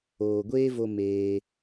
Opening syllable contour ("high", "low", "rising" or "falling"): low